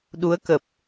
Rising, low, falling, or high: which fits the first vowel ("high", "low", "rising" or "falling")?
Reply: rising